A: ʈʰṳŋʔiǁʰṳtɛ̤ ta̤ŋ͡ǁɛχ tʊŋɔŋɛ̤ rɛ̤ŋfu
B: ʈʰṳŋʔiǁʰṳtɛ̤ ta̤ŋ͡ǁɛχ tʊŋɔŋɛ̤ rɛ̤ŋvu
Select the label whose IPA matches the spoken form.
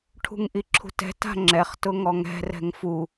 A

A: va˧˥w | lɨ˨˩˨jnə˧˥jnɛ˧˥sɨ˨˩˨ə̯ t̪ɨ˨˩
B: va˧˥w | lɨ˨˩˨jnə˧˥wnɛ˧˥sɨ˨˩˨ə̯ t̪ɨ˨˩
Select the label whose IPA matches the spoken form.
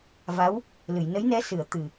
A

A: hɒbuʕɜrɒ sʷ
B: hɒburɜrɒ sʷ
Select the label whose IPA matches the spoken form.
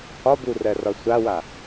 B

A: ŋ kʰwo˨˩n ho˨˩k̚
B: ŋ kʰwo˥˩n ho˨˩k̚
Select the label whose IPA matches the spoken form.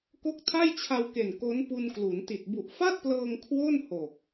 B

